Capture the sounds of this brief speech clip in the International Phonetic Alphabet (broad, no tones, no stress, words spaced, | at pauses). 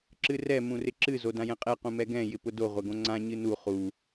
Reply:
ǁɨrɛ mũrɪǁɨ zodãjɛ̃qʼɛ qũmɛɡɛ̃ jɪpʊdo ʁʷɛɡõŋ͡ǀã ɲɨnu χu